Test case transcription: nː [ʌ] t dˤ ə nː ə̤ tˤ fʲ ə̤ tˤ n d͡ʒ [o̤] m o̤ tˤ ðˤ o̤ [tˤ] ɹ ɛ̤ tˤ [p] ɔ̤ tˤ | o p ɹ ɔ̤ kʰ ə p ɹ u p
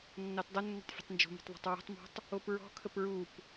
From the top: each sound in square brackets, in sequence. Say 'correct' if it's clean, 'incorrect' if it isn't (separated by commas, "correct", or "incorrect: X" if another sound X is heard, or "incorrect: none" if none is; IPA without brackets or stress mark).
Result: incorrect: ɑ, correct, correct, incorrect: m